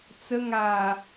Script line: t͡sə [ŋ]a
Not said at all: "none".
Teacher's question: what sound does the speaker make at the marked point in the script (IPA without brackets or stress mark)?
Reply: ŋ